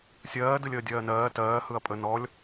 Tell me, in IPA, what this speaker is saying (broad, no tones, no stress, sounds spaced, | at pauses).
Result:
sʲ ɜː d ɯ lʲ əː dʲ ɜː n ɜː t ɜː h ɯ ɐ̯ pʼ ə n ɔ lʲ